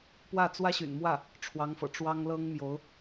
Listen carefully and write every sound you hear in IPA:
p w ä˥˩ t͡s w ä˥ ɕ y̰˨˩ n m w ä˥˩ | ʈ͡ʂʰ w ɑ˧˥ ŋ f ɤ̰˨˩ ʈ͡ʂ w ɑ˥ ŋ l ɤ˥ ŋ m j o˧˥ ʊ̯

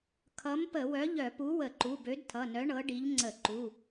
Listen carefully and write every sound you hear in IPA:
kʰ ʌ˨˥ m p ə˧˩˧ w œ˨˥ ʎ œ˧˩˧ p u˨˥ w ə˧˩˧ ǃ u˩˧˩ b ø˨˥ d tʰ ʌ˩˧˩ n œ˨˥ ɳ ɤ˨˥ ɖ i˨˥ ʎ ŋ͡ǀ ə˧˩˧ ǃ u˩˧˩

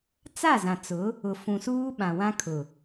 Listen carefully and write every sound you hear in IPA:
t͡s a˦˨ z ã˨ t͡s ʊ˨˦ | ʊ˨ f ũ˨ s uː˦ ɓ ã˨ w ã˦ kʰ ʊ˨

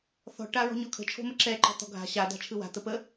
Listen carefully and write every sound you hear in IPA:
θ ɔ̤ ʈ a ɹ ɔ̤ ɲ ɔ kʰ ə̤ t͡ʃʰ o̤ m ə ǁ ɛ ǃ ɔ̤ t̪ ɔ̤ ɡʱ a̤ ɕ a d̪ a̤ t͡ʃʰ ɯ w a̤ t̪ ə p ə

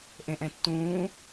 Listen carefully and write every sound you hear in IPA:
ʔ ẽ ʔ ɛ̃ tː ũː

